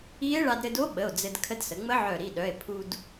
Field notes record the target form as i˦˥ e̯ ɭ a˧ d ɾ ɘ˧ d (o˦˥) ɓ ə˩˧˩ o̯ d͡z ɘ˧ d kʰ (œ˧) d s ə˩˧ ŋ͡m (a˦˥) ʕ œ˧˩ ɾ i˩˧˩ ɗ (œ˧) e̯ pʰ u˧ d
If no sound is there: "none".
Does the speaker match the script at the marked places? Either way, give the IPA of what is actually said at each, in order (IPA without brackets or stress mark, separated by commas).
o˦˥, ə˧, ə˦˥, œ˩˧˩